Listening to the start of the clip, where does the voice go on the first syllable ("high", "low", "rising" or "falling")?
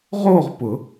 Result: falling